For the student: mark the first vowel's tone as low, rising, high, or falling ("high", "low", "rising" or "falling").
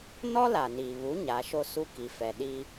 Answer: high